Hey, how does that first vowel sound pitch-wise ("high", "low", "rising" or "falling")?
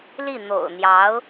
falling